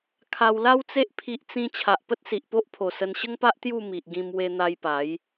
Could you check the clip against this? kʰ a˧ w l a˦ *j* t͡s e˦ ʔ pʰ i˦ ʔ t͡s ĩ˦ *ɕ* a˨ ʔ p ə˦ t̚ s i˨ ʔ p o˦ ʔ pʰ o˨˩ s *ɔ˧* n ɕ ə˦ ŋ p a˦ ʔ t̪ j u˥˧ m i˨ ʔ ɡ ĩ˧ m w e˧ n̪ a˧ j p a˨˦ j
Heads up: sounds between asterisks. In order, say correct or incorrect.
incorrect: w, incorrect: t͡ɕʰ, incorrect: ə˧

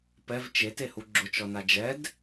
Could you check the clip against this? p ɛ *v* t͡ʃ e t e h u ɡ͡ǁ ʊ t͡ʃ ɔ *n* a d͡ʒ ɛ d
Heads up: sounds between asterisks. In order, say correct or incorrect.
correct, correct

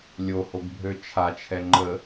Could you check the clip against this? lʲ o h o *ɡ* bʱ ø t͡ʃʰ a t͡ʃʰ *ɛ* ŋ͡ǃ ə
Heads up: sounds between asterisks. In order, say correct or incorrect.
correct, correct

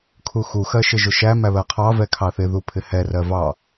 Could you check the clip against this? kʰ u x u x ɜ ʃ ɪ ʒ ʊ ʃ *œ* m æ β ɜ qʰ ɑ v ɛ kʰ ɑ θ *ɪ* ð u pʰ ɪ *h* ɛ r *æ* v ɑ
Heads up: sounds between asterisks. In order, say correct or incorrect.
incorrect: æ, correct, correct, incorrect: ɜ

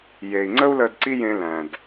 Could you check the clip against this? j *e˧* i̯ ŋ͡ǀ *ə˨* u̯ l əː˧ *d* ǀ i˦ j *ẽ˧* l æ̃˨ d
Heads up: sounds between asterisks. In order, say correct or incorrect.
incorrect: e˨, incorrect: ə˦, correct, correct

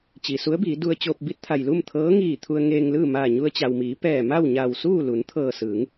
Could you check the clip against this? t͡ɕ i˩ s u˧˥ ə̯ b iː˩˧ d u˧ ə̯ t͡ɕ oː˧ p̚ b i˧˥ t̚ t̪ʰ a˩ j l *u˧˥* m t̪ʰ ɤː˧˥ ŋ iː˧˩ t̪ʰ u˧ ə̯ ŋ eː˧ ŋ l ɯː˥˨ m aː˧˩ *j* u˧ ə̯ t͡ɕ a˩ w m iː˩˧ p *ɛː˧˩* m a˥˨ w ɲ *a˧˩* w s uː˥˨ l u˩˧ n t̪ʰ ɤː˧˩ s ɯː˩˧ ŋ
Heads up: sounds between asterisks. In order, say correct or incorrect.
incorrect: u˥˨, incorrect: ɲ, correct, correct

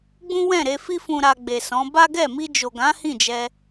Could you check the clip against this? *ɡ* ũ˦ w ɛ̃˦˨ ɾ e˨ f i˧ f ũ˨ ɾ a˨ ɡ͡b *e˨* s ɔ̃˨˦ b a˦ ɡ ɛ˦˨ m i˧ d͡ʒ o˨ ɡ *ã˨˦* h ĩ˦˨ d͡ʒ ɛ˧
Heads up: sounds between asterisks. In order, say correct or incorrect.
incorrect: ɡ͡b, correct, correct

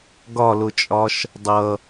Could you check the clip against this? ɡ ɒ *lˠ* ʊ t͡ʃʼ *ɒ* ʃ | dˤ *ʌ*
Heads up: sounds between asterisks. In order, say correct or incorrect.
incorrect: l, correct, correct

